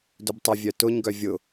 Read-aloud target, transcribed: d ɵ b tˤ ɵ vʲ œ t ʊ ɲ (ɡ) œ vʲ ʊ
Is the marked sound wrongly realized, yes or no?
no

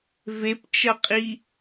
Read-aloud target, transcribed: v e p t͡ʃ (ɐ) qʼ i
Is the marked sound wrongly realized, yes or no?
no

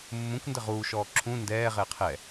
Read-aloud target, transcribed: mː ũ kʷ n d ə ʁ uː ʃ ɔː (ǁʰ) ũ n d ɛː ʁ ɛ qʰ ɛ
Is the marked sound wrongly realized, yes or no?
no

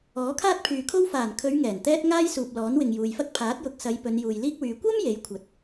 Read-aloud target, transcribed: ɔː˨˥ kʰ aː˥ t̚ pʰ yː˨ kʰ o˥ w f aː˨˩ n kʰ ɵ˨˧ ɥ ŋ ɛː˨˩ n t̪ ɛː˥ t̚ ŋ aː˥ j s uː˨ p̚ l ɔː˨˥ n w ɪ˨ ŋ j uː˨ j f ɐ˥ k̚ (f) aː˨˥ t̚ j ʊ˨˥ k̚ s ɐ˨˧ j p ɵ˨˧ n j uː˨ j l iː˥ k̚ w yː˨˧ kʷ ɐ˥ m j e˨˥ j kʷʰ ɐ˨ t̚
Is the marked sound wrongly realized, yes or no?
yes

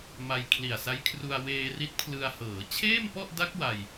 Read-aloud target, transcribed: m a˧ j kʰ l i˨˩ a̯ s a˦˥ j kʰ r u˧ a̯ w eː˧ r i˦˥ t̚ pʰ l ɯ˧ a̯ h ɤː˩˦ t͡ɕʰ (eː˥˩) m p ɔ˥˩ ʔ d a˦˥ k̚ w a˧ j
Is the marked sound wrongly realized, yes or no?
no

